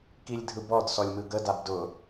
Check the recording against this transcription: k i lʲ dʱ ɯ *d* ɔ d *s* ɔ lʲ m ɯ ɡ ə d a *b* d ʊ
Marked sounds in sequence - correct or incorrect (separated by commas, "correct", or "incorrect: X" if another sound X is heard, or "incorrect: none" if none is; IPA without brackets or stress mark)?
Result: incorrect: b, correct, correct